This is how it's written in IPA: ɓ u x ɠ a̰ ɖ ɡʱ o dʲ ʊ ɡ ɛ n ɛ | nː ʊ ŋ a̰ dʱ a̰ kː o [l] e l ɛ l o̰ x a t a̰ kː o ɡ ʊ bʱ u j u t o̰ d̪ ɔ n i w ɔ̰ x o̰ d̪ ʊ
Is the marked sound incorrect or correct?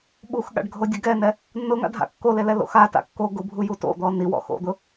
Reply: correct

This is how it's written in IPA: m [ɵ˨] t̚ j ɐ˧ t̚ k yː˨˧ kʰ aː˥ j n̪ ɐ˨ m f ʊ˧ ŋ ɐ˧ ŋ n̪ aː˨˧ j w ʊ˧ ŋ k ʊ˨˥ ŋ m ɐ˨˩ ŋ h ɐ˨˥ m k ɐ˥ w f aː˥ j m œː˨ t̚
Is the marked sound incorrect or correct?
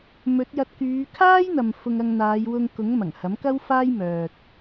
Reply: incorrect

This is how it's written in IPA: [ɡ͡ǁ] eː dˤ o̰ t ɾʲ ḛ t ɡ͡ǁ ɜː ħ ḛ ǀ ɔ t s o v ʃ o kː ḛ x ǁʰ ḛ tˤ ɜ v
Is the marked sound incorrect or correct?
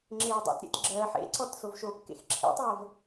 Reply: incorrect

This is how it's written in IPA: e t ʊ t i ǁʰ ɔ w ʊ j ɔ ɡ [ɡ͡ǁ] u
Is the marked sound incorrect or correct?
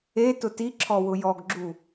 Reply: correct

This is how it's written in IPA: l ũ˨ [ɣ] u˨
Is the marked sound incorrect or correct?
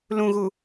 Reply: correct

